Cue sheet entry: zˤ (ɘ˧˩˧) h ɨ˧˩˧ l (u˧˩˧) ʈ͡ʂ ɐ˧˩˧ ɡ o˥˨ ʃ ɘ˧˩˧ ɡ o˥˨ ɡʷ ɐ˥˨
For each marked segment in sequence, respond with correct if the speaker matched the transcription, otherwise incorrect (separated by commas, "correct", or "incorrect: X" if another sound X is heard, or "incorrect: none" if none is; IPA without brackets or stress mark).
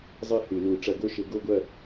incorrect: ɘ˥˨, correct